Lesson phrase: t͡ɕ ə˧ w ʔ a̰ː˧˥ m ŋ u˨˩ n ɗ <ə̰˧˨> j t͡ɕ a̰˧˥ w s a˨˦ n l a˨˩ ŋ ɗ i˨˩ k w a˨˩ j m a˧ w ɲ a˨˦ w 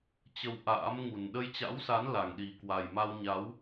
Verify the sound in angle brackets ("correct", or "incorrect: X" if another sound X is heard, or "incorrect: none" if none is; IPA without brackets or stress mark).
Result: incorrect: ə˧